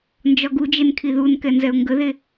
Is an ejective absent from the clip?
yes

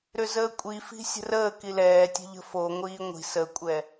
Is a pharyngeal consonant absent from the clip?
yes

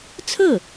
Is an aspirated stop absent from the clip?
no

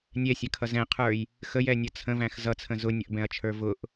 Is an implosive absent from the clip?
yes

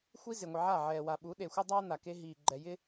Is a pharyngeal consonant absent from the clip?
no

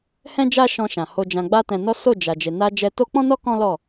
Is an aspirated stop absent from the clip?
yes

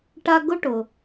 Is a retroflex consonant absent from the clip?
no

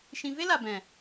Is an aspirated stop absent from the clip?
yes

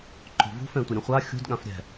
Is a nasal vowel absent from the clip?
no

